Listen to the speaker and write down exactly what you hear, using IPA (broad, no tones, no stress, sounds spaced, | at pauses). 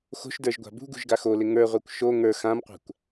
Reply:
x o̤ ʃ d ə˞ ʒ ɡʷ a̤ b ṳ ɡ ṳ ʒ ɡ a x o l ɪ ŋ ə˞ ʁʷ a kʷ ʃ o ŋ ə˞ x ã m qʷ a̤ kʷ